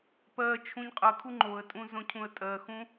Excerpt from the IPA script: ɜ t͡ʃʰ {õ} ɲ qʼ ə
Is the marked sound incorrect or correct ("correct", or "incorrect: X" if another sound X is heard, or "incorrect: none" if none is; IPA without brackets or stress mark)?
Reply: incorrect: ũ